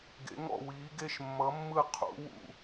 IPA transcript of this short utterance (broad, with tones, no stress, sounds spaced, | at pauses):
ɡ ḛ˧˥ ŋ ɔ̰˥˧ w iː˧˥ ɡ e˥˧ ʃ mː ʌ˧˥ mː ɯ˥˧ qʰ ṵ˧˥ w ṵ˥˧